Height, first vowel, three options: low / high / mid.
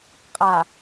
low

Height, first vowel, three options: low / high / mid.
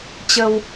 mid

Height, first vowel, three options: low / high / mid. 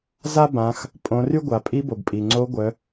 low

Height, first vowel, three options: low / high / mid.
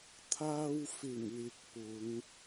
low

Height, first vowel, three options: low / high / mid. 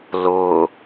high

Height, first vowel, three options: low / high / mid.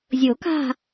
high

